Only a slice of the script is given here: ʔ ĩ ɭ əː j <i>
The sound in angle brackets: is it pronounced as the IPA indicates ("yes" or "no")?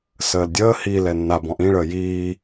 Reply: no